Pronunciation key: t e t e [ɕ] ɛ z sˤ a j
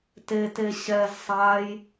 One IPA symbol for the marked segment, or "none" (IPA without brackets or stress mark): ɕ